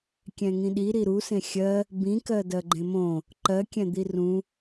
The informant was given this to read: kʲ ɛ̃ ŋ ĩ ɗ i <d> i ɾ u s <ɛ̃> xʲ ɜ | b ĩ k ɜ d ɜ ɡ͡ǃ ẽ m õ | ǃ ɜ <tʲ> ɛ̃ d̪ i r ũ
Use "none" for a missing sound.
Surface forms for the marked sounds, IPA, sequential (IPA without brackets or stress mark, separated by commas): ɾ, ẽ, kʲ